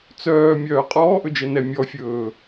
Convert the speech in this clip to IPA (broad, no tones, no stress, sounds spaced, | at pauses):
t͡s œː mʲ œː qʼ ɔː ʔ ɵ d͡ʒ ɛ n ɛ mʲ ɔ fʲ ɵː